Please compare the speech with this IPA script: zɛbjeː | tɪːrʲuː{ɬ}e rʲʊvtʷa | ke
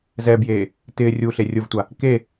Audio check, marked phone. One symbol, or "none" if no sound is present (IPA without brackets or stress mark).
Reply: ɬ